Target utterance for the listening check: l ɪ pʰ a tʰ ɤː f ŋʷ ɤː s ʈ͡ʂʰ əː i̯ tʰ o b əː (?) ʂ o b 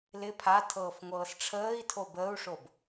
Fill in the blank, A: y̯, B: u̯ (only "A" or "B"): B